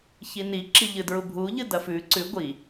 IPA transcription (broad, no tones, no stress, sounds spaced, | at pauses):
ç i n i ǁ i ʎ ɨ d ɹ u bʱ u ʎ ɨ d ɐ f ʉ ǀ ʉ ɡʷ i